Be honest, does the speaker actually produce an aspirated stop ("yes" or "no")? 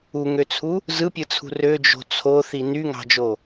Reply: yes